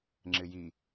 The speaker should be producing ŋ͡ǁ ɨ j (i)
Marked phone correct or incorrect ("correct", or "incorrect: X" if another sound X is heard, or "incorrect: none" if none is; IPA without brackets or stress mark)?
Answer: correct